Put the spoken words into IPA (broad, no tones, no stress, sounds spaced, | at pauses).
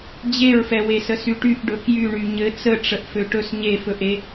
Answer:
d͡ʑ e ɹ f ɛ w e s ə s y ʈ y ʔ ɖ ɵ k j y ɳ y ɲ ɘ t͡s ə ʈ͡ʂ ə ʔ f ø ʈ ɵ s ɲ e f ɵ ʔ e